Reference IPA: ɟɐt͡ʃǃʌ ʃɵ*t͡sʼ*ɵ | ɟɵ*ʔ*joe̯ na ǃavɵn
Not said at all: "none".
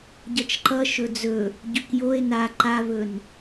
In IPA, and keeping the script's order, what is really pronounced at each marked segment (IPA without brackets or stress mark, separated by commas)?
d͡z, k